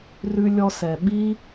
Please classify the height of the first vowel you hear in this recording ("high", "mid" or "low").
high